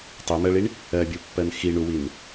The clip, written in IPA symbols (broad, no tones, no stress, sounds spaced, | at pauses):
tˤ i m ɜ ɭ i ɳ | ɜ bʲ u pː ɜ n x i ɳ u w i n